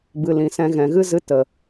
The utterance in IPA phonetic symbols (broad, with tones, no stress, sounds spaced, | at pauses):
b ɨ˨ l ĩ˨ s ɛ̃˧ ɣ ɛ̃˨ ɣ ɨ˦ z ɨ˧ t ə˨